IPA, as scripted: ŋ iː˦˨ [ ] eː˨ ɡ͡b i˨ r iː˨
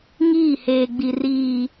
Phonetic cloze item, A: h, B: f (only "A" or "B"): A